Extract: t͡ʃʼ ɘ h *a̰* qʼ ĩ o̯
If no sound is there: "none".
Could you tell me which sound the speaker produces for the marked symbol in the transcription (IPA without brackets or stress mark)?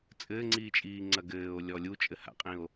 a̰